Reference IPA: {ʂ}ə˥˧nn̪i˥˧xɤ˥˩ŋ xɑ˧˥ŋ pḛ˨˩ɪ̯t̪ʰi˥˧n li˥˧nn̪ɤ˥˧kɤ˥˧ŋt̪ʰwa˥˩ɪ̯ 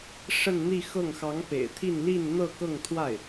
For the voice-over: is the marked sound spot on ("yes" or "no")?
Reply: yes